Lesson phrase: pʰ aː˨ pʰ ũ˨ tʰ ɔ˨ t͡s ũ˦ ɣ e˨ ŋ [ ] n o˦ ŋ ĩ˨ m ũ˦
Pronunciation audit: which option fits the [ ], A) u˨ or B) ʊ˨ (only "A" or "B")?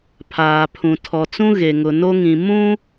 B